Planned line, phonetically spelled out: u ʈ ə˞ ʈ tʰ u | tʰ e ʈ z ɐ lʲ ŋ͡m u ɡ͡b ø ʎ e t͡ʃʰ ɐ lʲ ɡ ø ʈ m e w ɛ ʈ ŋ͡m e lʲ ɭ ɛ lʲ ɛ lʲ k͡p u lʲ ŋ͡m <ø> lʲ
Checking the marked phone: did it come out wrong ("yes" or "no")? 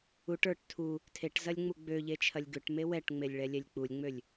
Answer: no